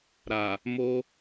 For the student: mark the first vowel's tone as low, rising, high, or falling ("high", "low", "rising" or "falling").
low